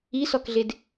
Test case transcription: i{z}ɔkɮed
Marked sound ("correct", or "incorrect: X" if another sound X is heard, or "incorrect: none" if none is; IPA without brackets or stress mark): incorrect: s